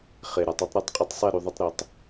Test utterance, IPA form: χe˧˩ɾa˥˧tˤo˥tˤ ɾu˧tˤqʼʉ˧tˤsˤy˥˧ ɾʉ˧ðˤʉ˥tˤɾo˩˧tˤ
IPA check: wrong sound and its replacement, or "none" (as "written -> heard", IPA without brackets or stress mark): y˥˧ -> e˥˧